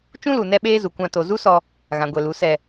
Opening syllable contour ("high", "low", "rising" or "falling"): high